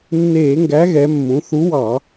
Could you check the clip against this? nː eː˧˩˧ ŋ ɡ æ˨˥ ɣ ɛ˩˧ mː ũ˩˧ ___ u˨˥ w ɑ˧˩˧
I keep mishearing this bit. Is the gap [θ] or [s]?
θ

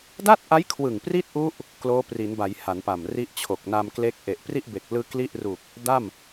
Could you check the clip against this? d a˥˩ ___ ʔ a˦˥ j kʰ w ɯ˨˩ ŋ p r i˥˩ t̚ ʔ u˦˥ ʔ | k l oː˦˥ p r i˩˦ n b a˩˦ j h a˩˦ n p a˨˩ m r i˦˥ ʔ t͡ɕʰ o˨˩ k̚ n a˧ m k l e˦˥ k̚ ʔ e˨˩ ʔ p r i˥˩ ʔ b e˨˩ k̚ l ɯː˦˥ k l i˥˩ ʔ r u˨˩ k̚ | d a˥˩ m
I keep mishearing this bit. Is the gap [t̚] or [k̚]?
t̚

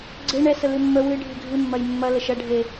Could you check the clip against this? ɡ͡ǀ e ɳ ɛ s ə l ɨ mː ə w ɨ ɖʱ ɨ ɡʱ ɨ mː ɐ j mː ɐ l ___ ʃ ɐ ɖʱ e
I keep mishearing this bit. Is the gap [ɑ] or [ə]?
ə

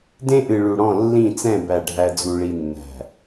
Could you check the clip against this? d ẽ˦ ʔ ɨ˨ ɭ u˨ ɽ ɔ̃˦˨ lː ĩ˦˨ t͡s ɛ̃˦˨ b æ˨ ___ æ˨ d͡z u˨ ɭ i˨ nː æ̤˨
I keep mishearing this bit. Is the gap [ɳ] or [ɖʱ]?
ɖʱ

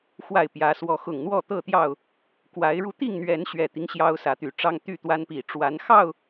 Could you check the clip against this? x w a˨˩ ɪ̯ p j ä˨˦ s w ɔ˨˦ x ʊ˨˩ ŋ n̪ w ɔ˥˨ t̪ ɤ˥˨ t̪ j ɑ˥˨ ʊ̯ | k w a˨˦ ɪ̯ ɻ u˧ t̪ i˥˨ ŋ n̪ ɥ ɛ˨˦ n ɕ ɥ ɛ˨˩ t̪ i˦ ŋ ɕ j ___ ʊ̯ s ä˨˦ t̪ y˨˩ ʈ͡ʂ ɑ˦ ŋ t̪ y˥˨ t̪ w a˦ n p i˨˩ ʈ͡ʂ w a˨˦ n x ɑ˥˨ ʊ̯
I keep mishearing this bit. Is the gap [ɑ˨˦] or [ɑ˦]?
ɑ˦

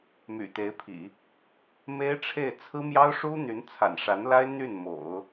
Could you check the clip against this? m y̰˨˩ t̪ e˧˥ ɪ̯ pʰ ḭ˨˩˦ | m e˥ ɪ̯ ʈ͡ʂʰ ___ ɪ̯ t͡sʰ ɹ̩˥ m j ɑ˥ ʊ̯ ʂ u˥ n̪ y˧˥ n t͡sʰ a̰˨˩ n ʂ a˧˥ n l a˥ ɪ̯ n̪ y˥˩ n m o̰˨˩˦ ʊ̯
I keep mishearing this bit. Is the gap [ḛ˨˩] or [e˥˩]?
e˥˩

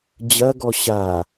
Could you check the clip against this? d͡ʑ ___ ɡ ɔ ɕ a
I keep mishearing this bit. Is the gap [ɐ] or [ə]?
ɐ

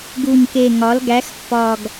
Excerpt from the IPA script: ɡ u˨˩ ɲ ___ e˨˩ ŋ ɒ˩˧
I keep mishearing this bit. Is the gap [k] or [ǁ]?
k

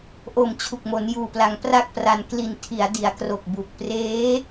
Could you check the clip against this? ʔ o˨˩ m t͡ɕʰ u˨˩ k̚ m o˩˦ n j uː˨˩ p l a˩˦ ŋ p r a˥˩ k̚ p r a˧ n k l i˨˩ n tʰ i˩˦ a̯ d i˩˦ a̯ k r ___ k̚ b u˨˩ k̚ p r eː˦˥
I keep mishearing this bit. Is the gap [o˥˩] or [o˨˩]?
o˨˩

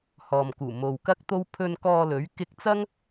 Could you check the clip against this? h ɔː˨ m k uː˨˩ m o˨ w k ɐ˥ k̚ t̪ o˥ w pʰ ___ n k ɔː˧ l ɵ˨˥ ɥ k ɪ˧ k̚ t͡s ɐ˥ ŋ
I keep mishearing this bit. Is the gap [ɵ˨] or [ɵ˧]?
ɵ˧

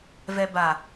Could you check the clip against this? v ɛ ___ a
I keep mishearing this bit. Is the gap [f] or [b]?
b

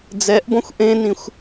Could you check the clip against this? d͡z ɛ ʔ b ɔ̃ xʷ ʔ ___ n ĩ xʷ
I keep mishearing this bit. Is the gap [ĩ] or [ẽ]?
ẽ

